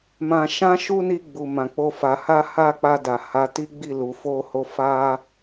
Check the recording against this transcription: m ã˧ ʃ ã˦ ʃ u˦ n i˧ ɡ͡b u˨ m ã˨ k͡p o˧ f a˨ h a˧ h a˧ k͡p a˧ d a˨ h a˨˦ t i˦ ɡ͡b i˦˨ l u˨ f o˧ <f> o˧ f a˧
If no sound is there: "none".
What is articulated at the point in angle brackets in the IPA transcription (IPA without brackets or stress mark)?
h